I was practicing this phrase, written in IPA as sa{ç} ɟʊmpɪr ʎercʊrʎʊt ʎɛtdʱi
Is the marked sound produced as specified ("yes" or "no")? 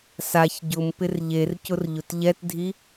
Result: yes